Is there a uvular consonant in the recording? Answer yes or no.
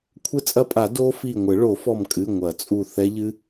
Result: no